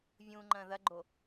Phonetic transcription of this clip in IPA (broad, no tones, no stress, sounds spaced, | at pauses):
vʲ ũ ŋ͡ǃ ɐ̃ ð ɐ ɡ͡ǃ o